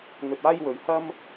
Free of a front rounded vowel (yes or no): yes